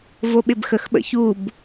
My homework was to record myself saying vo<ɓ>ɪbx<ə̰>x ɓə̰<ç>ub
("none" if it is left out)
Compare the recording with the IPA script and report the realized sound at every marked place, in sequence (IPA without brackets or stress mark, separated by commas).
ɓ, ə, ç